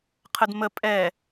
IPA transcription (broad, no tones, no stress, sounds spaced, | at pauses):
qʰ ə d m ə pʼ ɛ